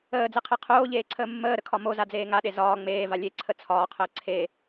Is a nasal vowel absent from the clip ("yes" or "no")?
yes